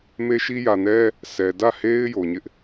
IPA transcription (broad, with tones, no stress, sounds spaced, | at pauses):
m e˦ ʃ i˦ j ä˨ n ɛ˦ | s ɛ˨ d ä˦˨ h e˦ ɪ̯ j o˨ ɲ ɪ˦ ʔ